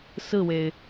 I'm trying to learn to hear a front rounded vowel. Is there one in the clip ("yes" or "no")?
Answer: no